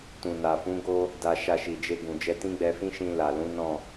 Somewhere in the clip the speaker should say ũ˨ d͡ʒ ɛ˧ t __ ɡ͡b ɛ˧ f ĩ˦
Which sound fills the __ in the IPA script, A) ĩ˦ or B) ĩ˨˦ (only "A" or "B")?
A